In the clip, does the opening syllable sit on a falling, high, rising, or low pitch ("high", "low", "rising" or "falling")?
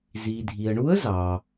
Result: low